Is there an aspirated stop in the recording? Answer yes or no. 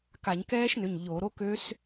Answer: no